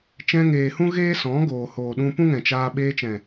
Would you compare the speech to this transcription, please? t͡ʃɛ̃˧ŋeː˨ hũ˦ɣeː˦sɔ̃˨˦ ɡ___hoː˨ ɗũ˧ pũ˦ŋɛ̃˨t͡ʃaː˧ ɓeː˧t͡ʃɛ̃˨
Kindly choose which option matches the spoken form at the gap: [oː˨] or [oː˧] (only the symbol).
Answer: oː˨